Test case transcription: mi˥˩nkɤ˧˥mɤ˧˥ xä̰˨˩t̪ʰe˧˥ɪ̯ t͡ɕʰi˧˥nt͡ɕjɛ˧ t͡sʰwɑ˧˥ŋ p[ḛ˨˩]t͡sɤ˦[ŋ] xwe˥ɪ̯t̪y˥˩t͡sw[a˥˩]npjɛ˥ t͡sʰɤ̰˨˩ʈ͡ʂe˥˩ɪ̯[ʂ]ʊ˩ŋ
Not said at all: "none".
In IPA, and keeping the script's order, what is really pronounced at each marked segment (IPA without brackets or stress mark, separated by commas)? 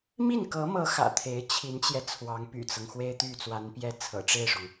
y̰˨˩, ŋ, a˧˥, ʂ